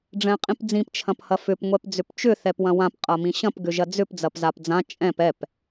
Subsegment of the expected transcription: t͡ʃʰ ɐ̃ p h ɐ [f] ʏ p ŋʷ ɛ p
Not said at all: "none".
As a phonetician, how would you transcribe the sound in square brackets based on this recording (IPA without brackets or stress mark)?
f